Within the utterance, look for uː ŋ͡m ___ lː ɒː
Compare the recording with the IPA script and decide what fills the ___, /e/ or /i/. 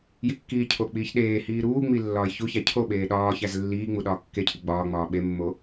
i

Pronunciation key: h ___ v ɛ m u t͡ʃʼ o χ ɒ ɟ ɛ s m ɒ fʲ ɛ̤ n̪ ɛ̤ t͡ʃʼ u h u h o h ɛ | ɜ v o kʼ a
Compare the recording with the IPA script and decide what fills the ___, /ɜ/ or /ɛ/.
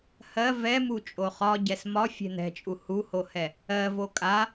ɜ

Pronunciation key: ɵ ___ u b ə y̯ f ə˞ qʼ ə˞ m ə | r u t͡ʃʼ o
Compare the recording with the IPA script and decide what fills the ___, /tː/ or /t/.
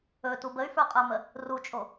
t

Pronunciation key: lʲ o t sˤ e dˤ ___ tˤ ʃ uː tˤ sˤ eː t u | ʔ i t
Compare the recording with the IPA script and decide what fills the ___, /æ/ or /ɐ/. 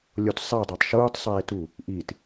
æ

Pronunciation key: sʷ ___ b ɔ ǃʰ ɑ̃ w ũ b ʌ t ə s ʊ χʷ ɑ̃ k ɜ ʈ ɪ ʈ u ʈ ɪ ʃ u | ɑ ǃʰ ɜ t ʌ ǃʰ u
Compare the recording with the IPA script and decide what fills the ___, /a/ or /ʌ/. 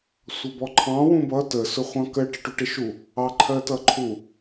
ʌ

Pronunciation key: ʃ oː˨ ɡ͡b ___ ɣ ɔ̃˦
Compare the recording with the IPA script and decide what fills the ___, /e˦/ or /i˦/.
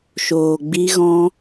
i˦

